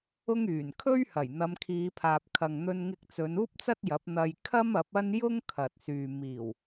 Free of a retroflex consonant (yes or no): yes